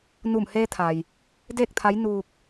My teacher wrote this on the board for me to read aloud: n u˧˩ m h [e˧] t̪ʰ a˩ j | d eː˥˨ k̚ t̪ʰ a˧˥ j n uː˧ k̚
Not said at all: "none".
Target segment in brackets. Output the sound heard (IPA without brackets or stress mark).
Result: eː˧